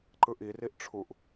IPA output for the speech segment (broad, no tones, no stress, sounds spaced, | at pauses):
ǃ ɯ ʔ i r i ʔ ʈ͡ʂʰ u ʔ